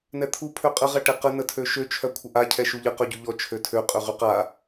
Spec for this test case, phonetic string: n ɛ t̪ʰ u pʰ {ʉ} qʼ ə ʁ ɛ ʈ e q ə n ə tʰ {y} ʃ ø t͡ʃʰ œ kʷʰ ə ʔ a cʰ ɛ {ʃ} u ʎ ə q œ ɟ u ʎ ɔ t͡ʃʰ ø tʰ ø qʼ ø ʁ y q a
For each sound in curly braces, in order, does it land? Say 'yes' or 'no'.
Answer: no, no, yes

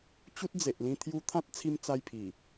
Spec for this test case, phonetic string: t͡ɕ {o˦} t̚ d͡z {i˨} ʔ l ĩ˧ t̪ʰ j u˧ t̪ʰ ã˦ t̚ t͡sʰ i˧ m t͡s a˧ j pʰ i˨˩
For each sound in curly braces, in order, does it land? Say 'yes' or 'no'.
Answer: no, no

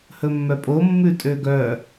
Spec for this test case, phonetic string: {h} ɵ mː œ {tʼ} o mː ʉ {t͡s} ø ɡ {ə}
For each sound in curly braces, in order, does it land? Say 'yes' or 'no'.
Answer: yes, no, no, no

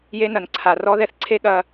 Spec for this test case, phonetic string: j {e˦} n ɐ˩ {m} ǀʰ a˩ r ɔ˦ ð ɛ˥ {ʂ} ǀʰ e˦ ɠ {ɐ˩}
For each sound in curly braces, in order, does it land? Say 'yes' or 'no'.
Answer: yes, no, no, no

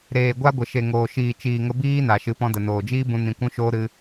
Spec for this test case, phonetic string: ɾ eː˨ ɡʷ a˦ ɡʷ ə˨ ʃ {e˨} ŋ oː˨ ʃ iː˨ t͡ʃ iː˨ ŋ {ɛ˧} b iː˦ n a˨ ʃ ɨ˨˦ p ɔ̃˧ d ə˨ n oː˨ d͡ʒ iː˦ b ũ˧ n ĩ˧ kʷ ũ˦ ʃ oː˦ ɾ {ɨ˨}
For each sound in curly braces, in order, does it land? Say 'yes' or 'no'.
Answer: yes, no, no

